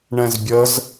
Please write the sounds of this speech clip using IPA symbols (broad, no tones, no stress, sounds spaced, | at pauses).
ɳ ɛ̃ z bʲ ə z